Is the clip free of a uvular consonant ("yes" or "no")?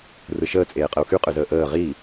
no